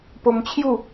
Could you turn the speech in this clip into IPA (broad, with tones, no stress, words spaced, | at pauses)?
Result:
po˧mt͡ɕʰju˥˧